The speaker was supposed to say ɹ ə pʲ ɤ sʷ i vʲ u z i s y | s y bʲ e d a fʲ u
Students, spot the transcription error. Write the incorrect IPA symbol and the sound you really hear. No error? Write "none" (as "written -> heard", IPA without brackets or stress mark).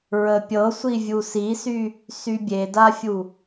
z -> s